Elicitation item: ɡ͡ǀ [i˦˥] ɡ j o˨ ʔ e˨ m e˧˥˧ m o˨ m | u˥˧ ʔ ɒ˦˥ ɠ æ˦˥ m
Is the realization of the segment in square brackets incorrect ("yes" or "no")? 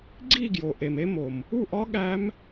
yes